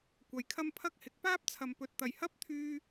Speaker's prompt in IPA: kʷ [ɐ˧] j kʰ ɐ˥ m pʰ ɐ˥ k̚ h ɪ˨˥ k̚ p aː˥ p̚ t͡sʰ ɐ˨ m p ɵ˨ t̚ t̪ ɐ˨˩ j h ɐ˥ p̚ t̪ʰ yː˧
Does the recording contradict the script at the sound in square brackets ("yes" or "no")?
yes